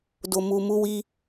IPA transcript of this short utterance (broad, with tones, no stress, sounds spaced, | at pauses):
d o˧ m u˧ m u˦ w i˦